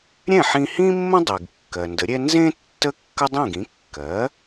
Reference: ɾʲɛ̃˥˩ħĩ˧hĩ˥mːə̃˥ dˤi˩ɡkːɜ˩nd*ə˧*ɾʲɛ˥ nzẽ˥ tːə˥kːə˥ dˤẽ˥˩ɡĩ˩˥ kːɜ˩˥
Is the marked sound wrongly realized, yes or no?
yes